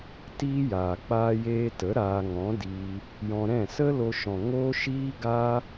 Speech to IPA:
tiː˦jaː˨k͡paː˦jeː˦ tə˨˦ ɾaː˧ŋɔ̃˨˦ diː˧ | jɔ̃˧ɾɛ̃˦˨ sə˦lo˧ʃɔ̃˨ ŋo˦ʃiː˦ɡa˦

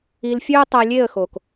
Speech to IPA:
i˧lfʲø˦ə̯ tˤæ˧lʲe˦˨ə̯xo˨k

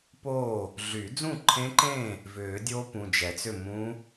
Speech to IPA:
po˥˨ | ɮy˨˩˦d͡zũ˥˨ǃʰẽ˦˥ǃẽ˥˨ | vʏː˨˩˦dʲo˦˥ pũ˩˧˩d͡ʒɛ˨˩˦t͡sʏ˥˨ mũ˦˥

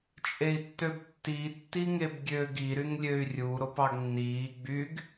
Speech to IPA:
t͡ʃʼei̯tːøbtːi tːiŋebɡʲøːɡi ɾyŋlʲøy̯rʲu ɾopɑɡnːiː ɡ͡byɡ

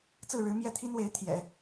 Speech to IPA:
t͡sɹ̩˥˩ɻɻ̩˧˥ mjɛ˥˩t̪ʰi˥nwe˧˥ɪ̯ t̪ʰjɛ̰˨˩˦

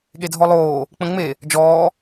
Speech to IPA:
ɠedʱɔlˠoː | k͡pə̃ŋ͡me | d͡ʒɔː

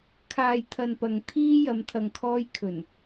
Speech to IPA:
kʰaː˨jt̪ʰɐ˨n pɐ˨ŋ t̪ʰiː˥jɐ˨˧m t̪ʰɐ˨ŋkʰɔː˧jkʰɵ˨˩n

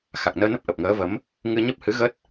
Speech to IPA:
xa˨˩k̚nəː˧nə˦˥p̚ ʔə˨˩p̚ŋəː˨˦və˨˦m | ŋɨ˧ɲə˦˥p̚hɨ˨˦ ɣə˦˥t̚

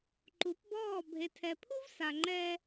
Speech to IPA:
ǃu˨˦pbɔː˦˨ bʱe˨tʰɛ˨pʰu˦vsa˨ ŋ͡ǃɛ˦

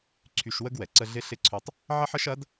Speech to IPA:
ǀʰy˧ʃ wə˥ɡwɛ˩ ǀə˧ɮɪ˧˥ɬɪ˧˥ǀʰø˧tˤ | ʕɐ˥ħ ə˥ʃ ɐ˧˥d

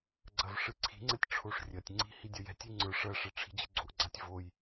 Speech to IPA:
ɡ͡ǀɐvʂɨǀʰi̤ŋ͡ǀɛtʲ ʈ͡ʂʰoʂrʲɐtʲŋ͡ǀi̤ hidʲɐjɛ̤tʲi ŋ͡ǀə˞ ʂɐʂɛ ʈ͡ʂʰi̤d͡ʑɨɡ͡ǀoʔɡ͡ǀatʲ voj

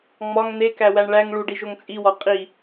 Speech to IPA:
ŋ͡mɒŋ n̪ekæwæɳ ɭæŋ ɭuɖiʒoŋ t͡sʼiwɒ qʼi

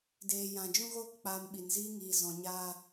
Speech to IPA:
deː˨jã˨ d͡ʒũ˧ɣoː˧kk͡paː˨m ɓi˨nziː˦ ŋiː˨ zɔ̃˨ɲaː˧

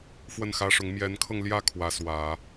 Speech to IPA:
fwə˥˩nxä˥ʂʊ˧˥ŋ mjɛ˧˥nkʰɤ˧ŋljä˥˩ kʰwä˧˥swä˨˩˦

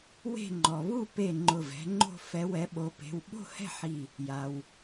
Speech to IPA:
we̤˥˧ ŋ͡ǃɔ˩βu˥˧ pe˧˩ ŋ͡ǃʊ˧˩vɛ̤˨˦ŋ͡ǃo̤˥˧ fɛ˨˦wɛ˨˦ɓo˨˦pe̤˩˧˩w ɓo̤˥˧hɛ̤˥˧ħi˧˩ | ja˩w

